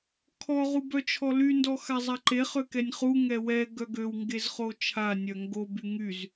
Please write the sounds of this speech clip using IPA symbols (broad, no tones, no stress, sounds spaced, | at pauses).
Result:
kʰ ɔ ʁ u b œ t͡ʃʰ ɔ l y n d ɔ x a zˤ a ǃ e χ ø k ɛ nʲ χ u ŋ ɛ w ɛ ɡ œ ɡ ø w ŋ ɡ e z χ o t͡ʃʰ a nʲ œ ŋ ɡ o b y ŋ y z